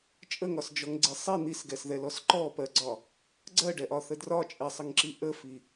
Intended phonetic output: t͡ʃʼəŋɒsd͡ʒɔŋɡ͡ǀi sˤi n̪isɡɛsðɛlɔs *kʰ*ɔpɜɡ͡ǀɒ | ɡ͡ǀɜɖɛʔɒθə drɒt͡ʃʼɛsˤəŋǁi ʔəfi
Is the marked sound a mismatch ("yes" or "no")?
yes